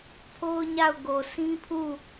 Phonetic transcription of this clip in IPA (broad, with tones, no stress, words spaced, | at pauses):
pʰo˦ʊ̯ɲa˦˨ʊ̯ɡo˨ sĩ˦pʰu˦˨